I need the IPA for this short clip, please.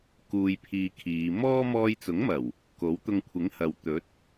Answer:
kuː˧jpʰiː˧kʰiː˨˧ mɔː˥ mɔː˧jt͡sʊ˨˥ŋmɐ˨˩w | ko˨˥w t̪ʊ˧ŋkʷʰɪ˨˥ŋhɐ˨w t̪ɵ˨˥t̚

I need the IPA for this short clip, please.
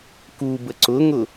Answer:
kubə ǀʊŋʊ

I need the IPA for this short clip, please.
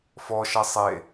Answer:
fɔʃɐ sˤe

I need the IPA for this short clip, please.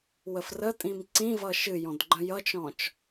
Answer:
wəfrətʼĩm ǀĩvʌ ʃɨjɔ̃d ɡ͡ǃə̃jʌt͡ʃɔ̃t͡ʃ

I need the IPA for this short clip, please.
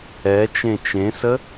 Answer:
ɛ t͡ʃẽt͡ʃẽsə

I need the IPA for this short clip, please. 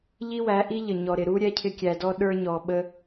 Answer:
ʎi˦wæ˨˦ʔi˦ ʎə˨ɲɔ˨ɾɪ˨ ɾu˦ ɾʲɛ˦cʰɪ˦ kʲæ˨dɔ˦ ɗə˞˦ɲɔ˨ɓə˦

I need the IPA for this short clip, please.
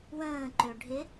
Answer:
wə̃ː ǃøɖʱɪ

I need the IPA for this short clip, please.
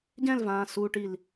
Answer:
ɟɛ̃lvãːsuːʈil

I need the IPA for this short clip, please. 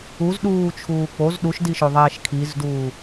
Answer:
uzɗuːt͡ʃʰuː k͡poz ɗuʃdiʃoðˤɛːʃ kʰizduː

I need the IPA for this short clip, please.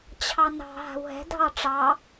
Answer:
t͡ɕʰɑnɑ̤ ɦa̤wɦɛ̤ dʱɑʈ͡ʂɑ

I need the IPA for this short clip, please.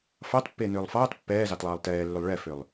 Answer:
fɑtpːeːnʏːlˠ fɑːt pːɛːzɑtlˠɑːlˠ tɛːlːʏlˠ ɭɛfʏlˠ

